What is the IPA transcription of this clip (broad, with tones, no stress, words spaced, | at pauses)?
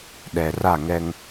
ɗɛ˨ra˦˨ŋɛ˦ŋ